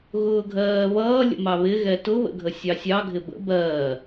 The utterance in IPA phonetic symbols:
ɣ ʊː ɡʱ ɜː β ʌː lʲ ə̰ m ɑ β ɪ ɣ ɛ t ʊ β ə̰ ɡʱ ə sʲ ɑ sʲ ɑ ɡʱ ɪ b ə̰ b ɜː

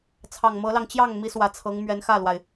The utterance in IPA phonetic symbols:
t͡sʰ ɑ˨˩ ŋ m ɤ˧˥ l ɑ˧ ŋ t͡ɕ j ɑ˥˩ ŋ m i˧˥ s w ä˨˩ t͡sʰ ɤ˧˥ ŋ m ɥ ɛ˧˥ n x ä˥˩ l w a˩ ɪ̯

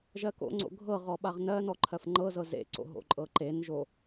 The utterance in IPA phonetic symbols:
ʒ ɜ k o̰ ŋ͡ǀ o̰ ɡʱ ɤ ʁ ɔ ɓ a ʁ n ɜ n ɔ ǃʰ ɜ f ŋ͡ǃ ɤ z ɤ z ḛ ǀ o̰ ɦ o̰ ǃʼ ɤ ǃ e n ʒ o

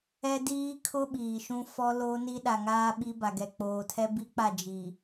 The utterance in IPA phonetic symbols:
ɛ˦ d iː˦ kʰ ʊ˦ ɓ iː˨ ʃ ũ˦ f ɔ˦ l oː˦ n i˦ ɗ a˨ ŋ aː˦ ɓ i˦ b a˨ ɡ ɛ˨ k͡p oː˨ tʰ ɛ˦ b i˦ k͡p a˦˨ d͡ʒ i˨

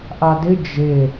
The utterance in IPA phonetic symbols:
ʔ a d ɪ d͡ʒ e

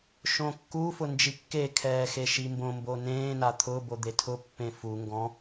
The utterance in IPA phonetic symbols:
ʃ õ kː u f ʊ n d͡ʒ i kː e kʰ ɛː x e ʃ i m b õ m b o n ẽː n a t̪ʰ ʊː b o d̪ e tʰ ʊ pː ẽ f u ŋ ɡ ɔ̃

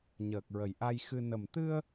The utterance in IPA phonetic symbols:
ɲ əː˨˩ k̚ ɹ ə˨˩ j ʔ a˧ j x ɨ˧ n ə˨˩ m t̪ ɨ˧ ə̯

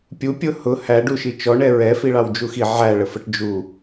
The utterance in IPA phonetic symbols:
pʲ u pʲ ʊ h ʊ h æ ɖ u ʃ i t͡ʃ ɔ ɳ ɛ ɹ ɛ f i ɭ ɑ w d͡ʒ u x i ʕ æ ɭ ə f ə ʈ d͡ʒ u

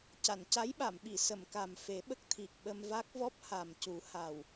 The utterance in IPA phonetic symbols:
c a˨˩˨ n c a˧˥ j ɓ a˨˩˨ m ɓ i˨˩˨ s ə˨˩˨ m k a˨˩ m f e˨˩˦ ɓ ə˦˥ k̚ t̪ʰ i˨˩ k̚ ɓ ə˧ m v a˦˥ k̚ v ɔ˦˥ p̚ h a˨˩ m c u˨˩˦ h a˨˩ w

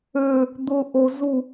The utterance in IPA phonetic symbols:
ø | d̪ ʊ ʔ o z u

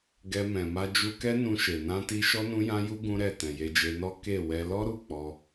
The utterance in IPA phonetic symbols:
ɡ ɛ˧ m ɛ̃˨ m a˧ d͡ʒ u˧ k ɛ˦ n ũ˧ ʃ e˨ n ã˧ t i˧ ʃ ɔ˧ n ũ˧ j ã˧ j u˧ ɡ ũ˦ ɾ ɛ˦˨ t ɛ̃˨ j e˧ d͡ʒ e˧ n ɔ˦ k e˦˨ w ɛ˧ l ɔ˦ ɾ u˦˨ k͡p ɔ˧

